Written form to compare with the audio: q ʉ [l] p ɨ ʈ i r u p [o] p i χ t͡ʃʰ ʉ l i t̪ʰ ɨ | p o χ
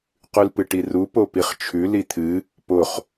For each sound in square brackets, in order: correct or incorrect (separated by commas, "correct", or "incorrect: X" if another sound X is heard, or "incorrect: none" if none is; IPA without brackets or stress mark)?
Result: correct, correct